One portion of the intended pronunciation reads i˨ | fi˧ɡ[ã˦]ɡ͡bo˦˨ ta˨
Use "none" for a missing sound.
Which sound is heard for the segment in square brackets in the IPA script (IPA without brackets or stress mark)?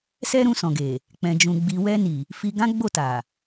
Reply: ã˦